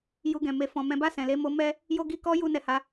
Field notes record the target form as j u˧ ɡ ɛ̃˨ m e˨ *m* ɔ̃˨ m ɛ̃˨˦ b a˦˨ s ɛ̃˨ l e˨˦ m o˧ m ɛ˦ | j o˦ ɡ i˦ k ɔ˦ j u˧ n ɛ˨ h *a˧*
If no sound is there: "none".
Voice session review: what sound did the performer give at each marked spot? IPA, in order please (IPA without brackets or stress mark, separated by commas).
f, a˨˦